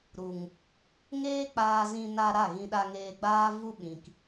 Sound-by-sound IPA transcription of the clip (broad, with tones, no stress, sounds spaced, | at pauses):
ɾ u˨ ŋ | ŋ eː˦ k͡p aː˧ z ĩ˧ n a˧ ɾ a˦˨ ɣ ĩ˧ ɗ a˧ ŋ eː˧ ɡ͡b aː˦ v u˧ ɓ ĩ˨ k